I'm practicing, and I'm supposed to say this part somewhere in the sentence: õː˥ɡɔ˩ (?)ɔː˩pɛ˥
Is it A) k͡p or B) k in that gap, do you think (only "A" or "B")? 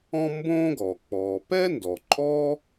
A